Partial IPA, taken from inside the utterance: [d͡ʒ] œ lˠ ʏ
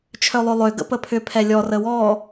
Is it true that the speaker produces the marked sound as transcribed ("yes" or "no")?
no